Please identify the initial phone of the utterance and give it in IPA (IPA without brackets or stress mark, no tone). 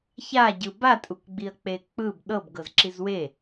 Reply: ç